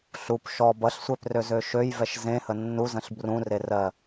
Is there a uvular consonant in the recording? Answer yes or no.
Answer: no